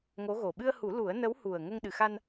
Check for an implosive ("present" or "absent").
present